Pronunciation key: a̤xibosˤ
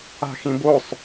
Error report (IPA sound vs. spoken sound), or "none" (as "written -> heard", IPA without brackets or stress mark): i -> ĩ